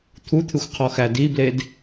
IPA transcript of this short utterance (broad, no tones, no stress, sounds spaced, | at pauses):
t̪ʰ u t̪ʰ ɨ xʷ qʰ ɔ x æ d i b l e d